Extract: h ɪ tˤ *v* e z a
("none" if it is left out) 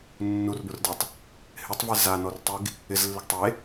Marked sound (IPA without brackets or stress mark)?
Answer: v